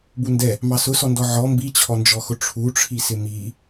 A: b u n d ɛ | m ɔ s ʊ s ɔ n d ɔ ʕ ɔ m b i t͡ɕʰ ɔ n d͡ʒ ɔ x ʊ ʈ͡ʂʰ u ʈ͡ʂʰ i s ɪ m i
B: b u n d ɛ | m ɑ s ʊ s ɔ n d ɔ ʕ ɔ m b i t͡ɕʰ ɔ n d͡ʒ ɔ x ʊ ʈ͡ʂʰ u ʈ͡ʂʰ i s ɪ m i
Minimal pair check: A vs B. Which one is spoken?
B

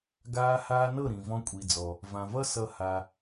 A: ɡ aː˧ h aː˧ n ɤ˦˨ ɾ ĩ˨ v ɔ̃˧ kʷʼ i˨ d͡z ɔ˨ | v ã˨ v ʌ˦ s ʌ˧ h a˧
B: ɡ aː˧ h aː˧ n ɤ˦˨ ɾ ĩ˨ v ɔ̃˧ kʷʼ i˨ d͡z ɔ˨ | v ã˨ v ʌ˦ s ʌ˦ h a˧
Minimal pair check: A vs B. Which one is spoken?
B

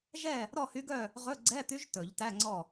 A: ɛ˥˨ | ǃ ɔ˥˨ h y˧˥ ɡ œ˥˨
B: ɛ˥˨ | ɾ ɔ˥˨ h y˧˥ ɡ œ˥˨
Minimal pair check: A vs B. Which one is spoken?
B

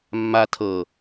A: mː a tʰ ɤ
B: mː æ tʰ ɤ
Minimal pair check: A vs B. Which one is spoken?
A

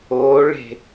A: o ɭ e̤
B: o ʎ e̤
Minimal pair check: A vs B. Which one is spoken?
A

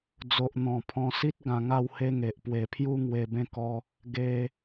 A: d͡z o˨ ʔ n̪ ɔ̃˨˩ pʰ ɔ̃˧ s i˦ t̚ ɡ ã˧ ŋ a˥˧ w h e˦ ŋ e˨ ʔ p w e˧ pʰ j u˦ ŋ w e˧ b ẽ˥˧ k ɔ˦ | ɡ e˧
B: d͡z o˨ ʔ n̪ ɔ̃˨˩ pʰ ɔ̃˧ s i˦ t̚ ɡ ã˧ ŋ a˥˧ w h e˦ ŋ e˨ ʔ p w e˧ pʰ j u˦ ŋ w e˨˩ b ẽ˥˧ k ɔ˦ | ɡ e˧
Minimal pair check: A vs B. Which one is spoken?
A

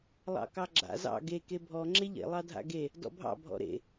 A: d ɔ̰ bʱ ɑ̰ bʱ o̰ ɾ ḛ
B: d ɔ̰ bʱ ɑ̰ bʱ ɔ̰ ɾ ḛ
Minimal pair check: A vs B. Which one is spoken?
B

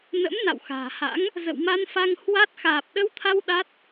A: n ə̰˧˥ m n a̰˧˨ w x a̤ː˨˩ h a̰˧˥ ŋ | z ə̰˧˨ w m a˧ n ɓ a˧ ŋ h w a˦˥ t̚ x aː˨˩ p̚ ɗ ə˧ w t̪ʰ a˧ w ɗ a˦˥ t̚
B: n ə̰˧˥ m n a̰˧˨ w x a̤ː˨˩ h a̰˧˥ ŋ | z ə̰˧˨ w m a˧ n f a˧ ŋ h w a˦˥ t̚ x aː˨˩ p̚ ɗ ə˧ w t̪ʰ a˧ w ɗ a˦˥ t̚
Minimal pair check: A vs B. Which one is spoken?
B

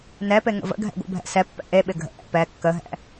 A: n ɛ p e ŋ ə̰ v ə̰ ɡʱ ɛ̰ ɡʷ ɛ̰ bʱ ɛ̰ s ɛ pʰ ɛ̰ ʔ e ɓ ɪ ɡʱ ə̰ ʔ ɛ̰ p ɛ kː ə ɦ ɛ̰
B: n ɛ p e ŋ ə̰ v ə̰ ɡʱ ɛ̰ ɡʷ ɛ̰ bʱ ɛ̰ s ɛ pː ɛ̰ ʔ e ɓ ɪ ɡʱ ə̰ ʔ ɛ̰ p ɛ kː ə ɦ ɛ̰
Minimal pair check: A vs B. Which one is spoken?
B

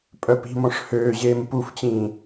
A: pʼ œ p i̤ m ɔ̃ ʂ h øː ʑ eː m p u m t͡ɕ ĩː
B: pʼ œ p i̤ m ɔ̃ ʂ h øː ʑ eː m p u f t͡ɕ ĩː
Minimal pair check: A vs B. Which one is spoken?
B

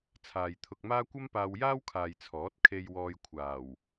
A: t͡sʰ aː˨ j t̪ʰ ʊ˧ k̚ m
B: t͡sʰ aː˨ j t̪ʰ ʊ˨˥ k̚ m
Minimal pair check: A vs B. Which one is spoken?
A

